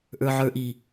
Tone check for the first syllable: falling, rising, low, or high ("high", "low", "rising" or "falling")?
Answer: low